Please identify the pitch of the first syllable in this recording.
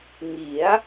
rising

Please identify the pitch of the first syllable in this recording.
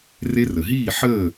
high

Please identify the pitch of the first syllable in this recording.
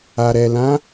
low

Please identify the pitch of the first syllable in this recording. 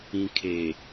low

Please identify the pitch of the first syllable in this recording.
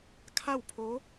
falling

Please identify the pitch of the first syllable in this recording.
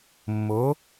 rising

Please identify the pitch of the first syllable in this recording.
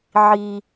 low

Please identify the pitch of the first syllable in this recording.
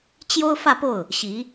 high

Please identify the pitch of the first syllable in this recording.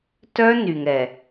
high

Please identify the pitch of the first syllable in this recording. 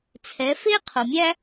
rising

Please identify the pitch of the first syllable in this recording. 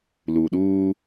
low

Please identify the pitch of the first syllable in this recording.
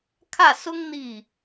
falling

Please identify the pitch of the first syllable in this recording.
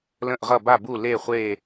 falling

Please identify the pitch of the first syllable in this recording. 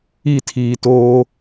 falling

